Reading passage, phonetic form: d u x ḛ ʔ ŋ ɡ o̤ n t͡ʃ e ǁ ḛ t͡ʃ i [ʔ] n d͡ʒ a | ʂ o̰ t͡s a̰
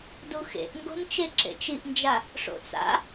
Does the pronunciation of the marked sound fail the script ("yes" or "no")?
no